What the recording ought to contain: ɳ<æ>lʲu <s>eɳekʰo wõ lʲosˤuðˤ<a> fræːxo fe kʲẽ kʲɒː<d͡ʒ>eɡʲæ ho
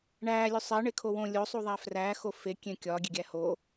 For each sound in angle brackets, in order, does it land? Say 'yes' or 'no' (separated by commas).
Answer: no, no, no, no